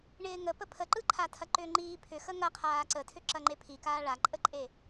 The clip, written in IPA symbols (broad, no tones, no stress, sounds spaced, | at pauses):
ɳ ɪː ŋ ə p ə pʰ ə ǃ ɯ ǃʰ a tʰ ɐ ǃ ʏː ŋ͡ǃ iː pʰ ʏ x ə ŋ ɐ qʰ aː ǀ ə tʰ ʏ ǁ ɐ ŋ͡ǃ e pʰ i k aː ɭ a ǃʼ ə ǃʼ e